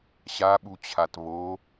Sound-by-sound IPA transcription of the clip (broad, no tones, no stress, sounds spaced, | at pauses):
ɕ a ɓ u t͡ɕʰ a t β o